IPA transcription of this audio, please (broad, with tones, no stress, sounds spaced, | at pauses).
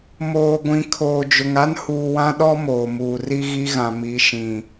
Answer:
m oː˨ ɡʷ ĩ˨ kʰ oː˨ d͡ʒ ʊ˨ ŋ a˦ n h uː˨ w ã˦ ɗ ɔ˦ m oː˨ m uː˨ r i˦ ɣ i˦ ɣ ã˨ m i˨˦ ʃ ĩ˨